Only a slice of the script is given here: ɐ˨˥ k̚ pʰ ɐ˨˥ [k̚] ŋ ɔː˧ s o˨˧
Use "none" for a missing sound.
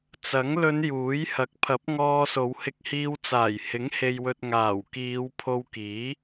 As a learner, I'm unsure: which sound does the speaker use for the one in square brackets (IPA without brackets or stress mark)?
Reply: p̚